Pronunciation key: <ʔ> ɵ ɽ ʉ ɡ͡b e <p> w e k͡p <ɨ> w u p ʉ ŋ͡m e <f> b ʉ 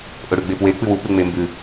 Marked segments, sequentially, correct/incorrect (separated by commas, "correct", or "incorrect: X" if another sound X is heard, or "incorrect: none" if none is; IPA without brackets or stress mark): correct, correct, correct, incorrect: m